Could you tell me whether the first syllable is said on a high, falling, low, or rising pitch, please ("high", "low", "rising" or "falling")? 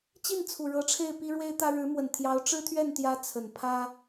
falling